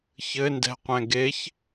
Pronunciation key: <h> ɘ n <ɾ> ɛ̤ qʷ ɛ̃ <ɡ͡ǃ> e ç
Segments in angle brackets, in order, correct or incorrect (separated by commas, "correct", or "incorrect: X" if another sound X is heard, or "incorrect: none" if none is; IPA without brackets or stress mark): incorrect: ç, incorrect: d, incorrect: ɡ